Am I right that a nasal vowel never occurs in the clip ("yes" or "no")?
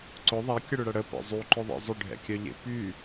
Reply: yes